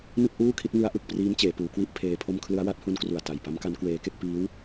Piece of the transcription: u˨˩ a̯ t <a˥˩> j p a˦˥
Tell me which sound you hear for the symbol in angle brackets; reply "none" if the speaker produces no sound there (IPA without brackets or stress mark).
a˨˩